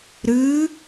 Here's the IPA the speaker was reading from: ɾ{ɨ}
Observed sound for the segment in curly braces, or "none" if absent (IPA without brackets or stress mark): ɨ